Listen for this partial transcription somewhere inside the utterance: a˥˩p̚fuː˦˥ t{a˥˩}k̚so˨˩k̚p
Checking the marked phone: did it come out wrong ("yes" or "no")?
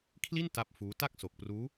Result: no